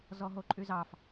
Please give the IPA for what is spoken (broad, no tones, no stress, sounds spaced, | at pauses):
z ɔ ɦ o ǃʼ y z ɑ f